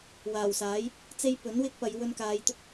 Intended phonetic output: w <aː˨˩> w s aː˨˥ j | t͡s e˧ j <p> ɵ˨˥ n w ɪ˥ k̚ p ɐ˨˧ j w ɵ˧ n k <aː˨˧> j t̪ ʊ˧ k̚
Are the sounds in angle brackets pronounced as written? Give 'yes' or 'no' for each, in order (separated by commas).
yes, yes, yes